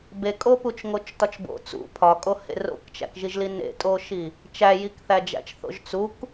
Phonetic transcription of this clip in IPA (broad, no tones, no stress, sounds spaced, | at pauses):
b e kʼ o p u t͡ʃ ŋ o t͡ʃ t ɒ t͡ʃ b o̰ t͡s ṵ pʰ ɒ kʼ o h ḛ r o̰ k t͡ʃ æ̰ k ʒ i ʒ l i n ḛ tʼ o ʃ i | t͡ʃ æ j i k θ æ d͡ʒ æ̰ t͡ʃ θ o̰ ʒ t͡s u k